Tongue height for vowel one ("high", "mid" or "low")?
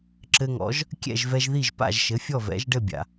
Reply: mid